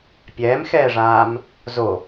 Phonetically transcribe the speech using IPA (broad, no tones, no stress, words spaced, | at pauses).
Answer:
pʲɛːmxɛːʐaːm | zo